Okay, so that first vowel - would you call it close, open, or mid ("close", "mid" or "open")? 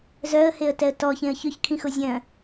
mid